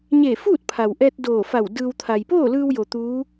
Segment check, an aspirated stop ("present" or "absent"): present